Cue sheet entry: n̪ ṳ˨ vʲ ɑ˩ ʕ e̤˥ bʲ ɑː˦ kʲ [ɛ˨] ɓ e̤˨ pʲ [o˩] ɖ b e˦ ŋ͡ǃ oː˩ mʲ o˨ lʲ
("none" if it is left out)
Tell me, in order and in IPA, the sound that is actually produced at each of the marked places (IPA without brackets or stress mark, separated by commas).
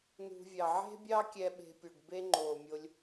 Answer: ɛ˨, o˩